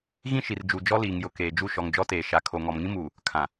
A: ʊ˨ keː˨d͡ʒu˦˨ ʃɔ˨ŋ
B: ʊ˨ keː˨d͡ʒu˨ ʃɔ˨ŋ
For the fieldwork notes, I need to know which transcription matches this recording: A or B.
A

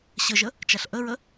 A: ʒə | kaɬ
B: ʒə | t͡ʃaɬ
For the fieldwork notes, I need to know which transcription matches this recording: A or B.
B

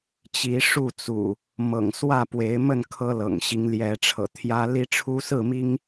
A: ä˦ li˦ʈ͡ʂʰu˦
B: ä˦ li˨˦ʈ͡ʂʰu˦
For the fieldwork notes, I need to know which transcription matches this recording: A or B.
A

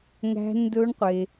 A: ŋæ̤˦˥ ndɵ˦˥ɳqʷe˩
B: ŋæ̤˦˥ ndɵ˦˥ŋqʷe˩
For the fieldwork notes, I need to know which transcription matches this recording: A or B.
A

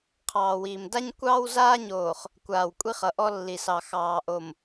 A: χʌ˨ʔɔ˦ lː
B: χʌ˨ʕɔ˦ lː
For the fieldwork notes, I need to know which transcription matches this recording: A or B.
A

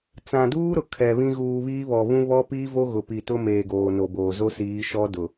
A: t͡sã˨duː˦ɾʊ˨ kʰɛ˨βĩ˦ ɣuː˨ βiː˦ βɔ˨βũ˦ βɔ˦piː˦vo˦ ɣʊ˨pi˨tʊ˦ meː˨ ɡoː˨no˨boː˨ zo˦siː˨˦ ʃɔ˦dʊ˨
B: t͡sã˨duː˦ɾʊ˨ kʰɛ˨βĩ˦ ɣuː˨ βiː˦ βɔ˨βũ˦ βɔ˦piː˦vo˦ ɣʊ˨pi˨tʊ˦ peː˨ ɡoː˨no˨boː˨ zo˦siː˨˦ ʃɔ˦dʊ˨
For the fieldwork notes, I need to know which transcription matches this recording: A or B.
A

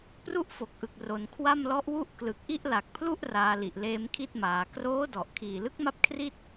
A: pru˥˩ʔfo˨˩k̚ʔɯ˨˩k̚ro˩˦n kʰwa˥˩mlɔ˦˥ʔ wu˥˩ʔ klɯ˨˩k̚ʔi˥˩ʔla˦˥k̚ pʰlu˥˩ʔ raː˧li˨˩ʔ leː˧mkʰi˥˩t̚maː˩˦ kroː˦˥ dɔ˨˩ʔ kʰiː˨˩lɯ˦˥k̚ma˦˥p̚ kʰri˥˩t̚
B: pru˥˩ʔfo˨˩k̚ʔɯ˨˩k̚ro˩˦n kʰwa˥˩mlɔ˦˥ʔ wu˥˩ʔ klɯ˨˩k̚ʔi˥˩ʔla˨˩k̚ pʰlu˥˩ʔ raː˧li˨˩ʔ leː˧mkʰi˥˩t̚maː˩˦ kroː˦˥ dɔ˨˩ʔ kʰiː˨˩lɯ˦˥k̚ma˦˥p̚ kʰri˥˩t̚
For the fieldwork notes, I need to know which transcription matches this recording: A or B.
B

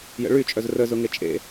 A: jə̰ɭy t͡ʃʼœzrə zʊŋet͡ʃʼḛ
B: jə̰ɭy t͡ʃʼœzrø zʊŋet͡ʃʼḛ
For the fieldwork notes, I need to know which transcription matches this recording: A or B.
A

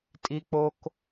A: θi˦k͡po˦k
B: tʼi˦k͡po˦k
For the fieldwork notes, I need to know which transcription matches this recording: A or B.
B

